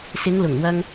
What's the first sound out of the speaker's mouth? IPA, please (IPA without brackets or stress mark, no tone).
s